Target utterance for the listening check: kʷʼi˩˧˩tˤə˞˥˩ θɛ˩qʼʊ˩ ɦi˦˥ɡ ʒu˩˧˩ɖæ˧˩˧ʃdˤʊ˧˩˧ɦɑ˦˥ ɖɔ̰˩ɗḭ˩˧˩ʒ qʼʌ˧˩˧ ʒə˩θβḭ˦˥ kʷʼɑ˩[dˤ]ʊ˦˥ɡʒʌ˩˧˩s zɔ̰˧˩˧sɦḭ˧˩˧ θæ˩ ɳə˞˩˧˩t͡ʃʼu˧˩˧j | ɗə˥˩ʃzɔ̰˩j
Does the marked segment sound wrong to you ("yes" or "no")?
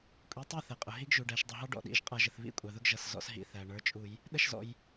yes